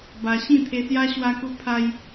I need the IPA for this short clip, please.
ba˧ ɕĩ˥˧t̪ʰe˧sja˦ ɕwa˦ku˦ pʰa˦j

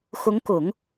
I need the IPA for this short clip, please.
xʊ˧˥ŋkʊ˨˩˦ŋ

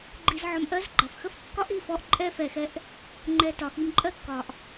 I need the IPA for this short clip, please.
ɡ͡ǃi˧z ʕɔ˧mʔɜ˦zɡ͡ǃɑ˨f xə˦fkːɒ˦ʔi˦˨fɔ˧ʔ ǃʼɛ˦fɛ˨xɛ˧ʔ | ŋ͡ǃɛ˧tɒ˨xi˧m ǃʼɜ˦kːɒ˨ʔ

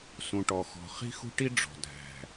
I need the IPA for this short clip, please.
sũ˨ʈɔ˨ xɔ̤˨ χi̤˦xṳ˦ʈi˦ ɖ͡ʐɔ̤˨dʱæ̤˨

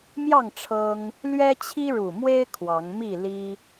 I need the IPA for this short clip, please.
mjɑ˥˨ŋ ʈ͡ʂʰɤ˦ŋ | lɥɛ˦t͡ɕʰi˦ɻu˨˩mwe˦ɪ̯ kʰwɑ˨˦ŋmi˥˨li˦

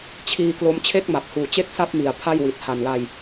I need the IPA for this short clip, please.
t͡ɕʰiː˧klo˦˥m t͡ɕʰe˥˩k̚ma˨˩p̚huː˨˩t͡ɕe˥˩k̚ sa˥˩p̚mi˨˩a̯ pʰa˥˩jwi˨˩t̚ ha˨˩nla˧j

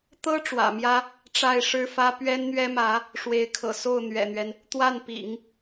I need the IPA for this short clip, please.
t̪ɤ˥ ʈ͡ʂwä̰˨˩mjä˥ | ʈ͡ʂa˥˩ɪ̯ʂɻ̩˥fä˥ pɥɛ˥nn̪ɥɛ˥mä˧˥ | ʂwe˧˥ɪ̯kʰɤ̰˨˩ so˥˩ʊ̯n̪ɥɛ̰˨˩n̪ɥɛ˦n | t̪wa˥˩npḭ˨˩˦ŋ

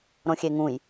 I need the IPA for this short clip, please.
ɾõxʲeŋũj

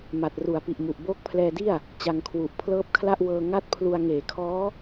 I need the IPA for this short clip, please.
ma˨˩t̚ru˩˦a̯pi˨˩ʔmu˨˩ʔ boː˦˥k̚pʰlɛː˧di˥˩a̯ | t͡ɕa˧ŋkʰwu˨˩ʔ pʰlɤː˦˥p̚kʰla˥˩ʔwɤː˧ ŋa˥˩t̚pʰlu˧a̯ ŋeː˩˦kʰɔː˦˥

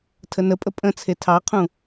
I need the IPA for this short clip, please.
tʰənəpʼə pʼə̃t͡sʰe tʰɑqʰũ

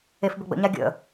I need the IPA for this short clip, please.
efbəɡ͡bə̰ɲa ɡʲə̰

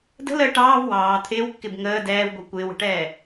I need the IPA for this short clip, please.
də̤ləː ʈɑːv wɑː t̪ʰɪːwkːɪb ŋəː dɛːvɡʷʌ kʷɪːwə̤ʈɛː

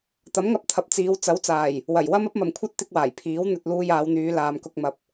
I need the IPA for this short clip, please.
t̪ɐ˨˥mŋɐ˧p̚ t̪ʰɐ˨p̚t͡siː˨˧w t͡sɐ˨˥wt͡saː˨˩j | wɐ˨˩jwɐ˥m ɐ˥p̚mɐ˨mkʷʰɐ˥t̚ t̪ɪ˥k̚waː˨˩j pʰiː˨˥w n̪ɵ˧t̚ luː˧jaː˨˧wn̪yː˨˧ laː˨mkʊ˧k̚mɐ˨p̚

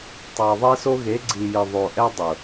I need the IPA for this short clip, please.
tˤa˨ɐ̯ðˤe˦so˦ ɣe˨˦ɡ͡ǀi˨jɪ˨ ðˤo˨ʔɛ˦dˤʊ˨

